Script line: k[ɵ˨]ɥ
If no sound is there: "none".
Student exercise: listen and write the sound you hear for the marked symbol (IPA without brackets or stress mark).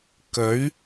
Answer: ɵ˨˥